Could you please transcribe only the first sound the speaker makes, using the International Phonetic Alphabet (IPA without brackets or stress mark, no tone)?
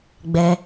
ɡ͡b